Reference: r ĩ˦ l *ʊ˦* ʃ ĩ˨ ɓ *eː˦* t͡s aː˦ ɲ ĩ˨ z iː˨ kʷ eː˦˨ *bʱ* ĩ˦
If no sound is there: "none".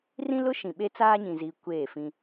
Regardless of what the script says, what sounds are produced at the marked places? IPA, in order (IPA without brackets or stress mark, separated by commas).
ʊ˦, e˦, f